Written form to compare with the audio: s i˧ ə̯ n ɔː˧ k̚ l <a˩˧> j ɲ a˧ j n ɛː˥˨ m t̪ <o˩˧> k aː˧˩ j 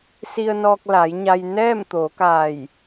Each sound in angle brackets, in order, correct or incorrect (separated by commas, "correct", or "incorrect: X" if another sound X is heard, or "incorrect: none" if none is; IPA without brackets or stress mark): correct, correct